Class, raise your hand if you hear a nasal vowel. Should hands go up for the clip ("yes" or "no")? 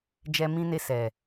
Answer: yes